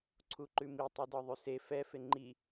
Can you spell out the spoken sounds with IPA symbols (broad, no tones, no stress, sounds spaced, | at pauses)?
ǀʰ u ǃ ʉ m i tˤ e d ɒ ðˤ ʉ s e f ɛ f e ŋ͡ǃ i